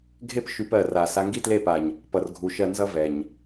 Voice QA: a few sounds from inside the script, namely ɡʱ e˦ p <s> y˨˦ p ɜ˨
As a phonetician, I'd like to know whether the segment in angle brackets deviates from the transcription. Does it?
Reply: yes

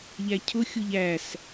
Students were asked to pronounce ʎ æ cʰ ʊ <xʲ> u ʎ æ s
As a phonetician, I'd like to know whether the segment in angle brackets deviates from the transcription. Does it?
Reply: no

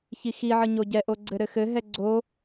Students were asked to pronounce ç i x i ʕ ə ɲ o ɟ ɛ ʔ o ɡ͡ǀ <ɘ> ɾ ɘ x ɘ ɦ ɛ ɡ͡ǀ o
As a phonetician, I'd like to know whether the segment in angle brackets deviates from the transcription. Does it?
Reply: no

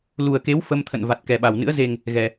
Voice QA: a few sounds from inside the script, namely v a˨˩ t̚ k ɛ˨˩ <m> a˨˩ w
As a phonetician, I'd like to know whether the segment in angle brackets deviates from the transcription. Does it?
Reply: yes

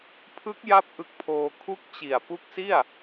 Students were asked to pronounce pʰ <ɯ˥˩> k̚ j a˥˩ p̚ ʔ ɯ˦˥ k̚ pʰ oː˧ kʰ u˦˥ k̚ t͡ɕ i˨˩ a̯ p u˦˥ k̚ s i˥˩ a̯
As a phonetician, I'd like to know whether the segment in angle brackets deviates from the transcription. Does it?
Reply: yes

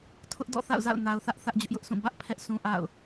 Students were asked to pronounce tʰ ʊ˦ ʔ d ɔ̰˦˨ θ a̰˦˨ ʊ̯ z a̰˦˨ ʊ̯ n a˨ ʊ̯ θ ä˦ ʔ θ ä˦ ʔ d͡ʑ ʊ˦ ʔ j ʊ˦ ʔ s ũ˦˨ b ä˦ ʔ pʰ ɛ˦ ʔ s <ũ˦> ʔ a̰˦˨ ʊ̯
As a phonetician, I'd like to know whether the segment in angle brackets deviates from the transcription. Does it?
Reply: no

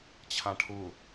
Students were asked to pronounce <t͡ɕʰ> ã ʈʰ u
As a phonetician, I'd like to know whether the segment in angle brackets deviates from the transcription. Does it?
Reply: no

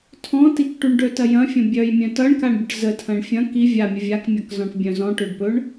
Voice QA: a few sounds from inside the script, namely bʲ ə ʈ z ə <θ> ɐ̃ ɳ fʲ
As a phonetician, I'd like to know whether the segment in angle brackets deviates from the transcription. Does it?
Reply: yes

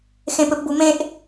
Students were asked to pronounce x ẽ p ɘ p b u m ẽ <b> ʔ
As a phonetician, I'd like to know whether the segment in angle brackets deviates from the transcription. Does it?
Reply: yes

